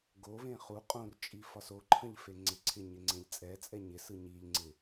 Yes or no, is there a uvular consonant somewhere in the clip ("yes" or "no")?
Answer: yes